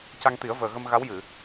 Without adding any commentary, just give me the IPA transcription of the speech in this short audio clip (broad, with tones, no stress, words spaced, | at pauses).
ca˧ŋt̪i˨˩˦ə̯ vəː˨˩ɣə˧m ɣa˧˥wjɨ˨˩˨